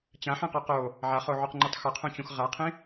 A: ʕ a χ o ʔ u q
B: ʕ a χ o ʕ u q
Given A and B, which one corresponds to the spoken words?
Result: B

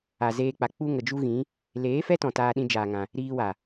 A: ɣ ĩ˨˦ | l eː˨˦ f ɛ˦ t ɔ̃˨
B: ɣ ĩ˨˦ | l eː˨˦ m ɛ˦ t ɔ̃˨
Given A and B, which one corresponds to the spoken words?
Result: A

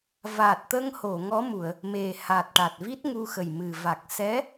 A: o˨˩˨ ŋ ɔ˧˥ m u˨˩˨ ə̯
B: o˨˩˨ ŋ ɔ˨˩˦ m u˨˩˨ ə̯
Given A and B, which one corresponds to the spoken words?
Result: A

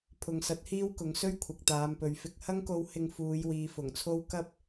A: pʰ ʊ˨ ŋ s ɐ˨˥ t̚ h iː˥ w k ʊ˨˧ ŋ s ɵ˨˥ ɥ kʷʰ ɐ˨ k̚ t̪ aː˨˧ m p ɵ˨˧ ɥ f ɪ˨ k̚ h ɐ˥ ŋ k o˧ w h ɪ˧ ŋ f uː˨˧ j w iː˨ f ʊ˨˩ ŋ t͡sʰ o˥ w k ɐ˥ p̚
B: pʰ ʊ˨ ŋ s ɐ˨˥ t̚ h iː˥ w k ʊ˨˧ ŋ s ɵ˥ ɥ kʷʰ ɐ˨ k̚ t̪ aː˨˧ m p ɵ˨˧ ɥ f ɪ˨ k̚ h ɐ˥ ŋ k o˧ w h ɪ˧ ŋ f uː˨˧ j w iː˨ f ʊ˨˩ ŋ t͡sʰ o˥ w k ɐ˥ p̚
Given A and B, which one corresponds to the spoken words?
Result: B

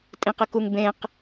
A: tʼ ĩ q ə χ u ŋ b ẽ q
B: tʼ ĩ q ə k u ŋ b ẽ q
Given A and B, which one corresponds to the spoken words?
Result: B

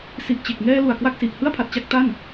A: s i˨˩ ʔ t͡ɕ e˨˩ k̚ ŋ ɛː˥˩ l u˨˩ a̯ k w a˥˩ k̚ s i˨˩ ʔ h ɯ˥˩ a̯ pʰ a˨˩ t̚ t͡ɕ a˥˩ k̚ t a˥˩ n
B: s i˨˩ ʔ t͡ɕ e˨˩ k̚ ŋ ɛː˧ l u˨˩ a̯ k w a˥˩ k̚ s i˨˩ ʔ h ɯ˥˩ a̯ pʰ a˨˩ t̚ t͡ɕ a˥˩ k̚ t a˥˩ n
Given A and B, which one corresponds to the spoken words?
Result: B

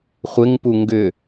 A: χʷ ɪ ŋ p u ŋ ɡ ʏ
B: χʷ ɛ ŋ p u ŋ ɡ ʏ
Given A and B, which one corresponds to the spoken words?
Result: A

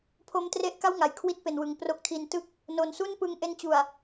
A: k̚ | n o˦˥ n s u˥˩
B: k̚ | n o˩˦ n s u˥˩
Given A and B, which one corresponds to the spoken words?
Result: B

